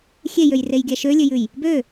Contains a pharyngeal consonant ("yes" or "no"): no